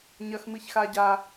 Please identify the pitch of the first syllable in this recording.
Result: high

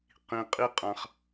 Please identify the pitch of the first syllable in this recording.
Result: low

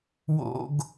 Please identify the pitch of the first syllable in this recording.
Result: high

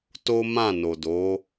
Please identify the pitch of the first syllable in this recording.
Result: high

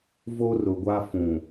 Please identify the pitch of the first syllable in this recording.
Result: high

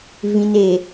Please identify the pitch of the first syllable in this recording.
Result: low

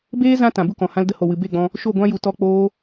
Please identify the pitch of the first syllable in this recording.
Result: high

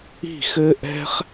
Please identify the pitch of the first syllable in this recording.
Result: falling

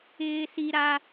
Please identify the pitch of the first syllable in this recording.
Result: high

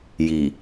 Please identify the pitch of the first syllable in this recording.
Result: low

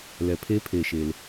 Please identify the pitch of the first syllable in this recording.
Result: low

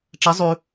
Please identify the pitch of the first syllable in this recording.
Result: rising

